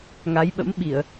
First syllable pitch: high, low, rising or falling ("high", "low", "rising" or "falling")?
rising